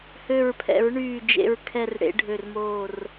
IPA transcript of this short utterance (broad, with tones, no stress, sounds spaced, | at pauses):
h ø˧˩ ɹ pʰ ɛ̰˨˩˦ ɹ ɳ yː˧˩ d͡ʒ ḛ˧˩ ɹ kʰ ɛ˧˩ r ɽ ḛ˨˩˦ ɖʱ ø˧˩ r m oː˧˩ r